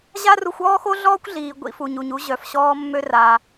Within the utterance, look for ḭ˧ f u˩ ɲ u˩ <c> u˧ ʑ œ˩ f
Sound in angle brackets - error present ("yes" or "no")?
yes